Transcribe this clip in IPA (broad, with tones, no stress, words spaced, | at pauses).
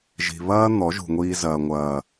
ʒi̤˨βɐː˦ n̪ɔ˨˦ʒṳ˨ŋʷiː˧zɐː˨ ŋʷɐː˨